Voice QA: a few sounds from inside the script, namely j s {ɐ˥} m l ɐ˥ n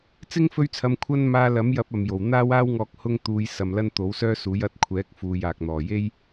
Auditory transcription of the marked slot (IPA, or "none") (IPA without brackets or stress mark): ɐ˨